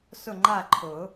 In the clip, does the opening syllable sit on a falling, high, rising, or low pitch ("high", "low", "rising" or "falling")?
falling